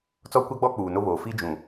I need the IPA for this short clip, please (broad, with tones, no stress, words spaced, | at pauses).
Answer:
t͡sɔ˦kʷa˦ɡ͡bɔ˦ k͡puː˨no˦βoː˨ fi˦d͡ʒũ˨